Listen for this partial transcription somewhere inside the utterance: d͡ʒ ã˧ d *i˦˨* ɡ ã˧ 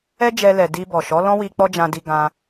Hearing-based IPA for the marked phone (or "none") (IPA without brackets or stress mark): i˧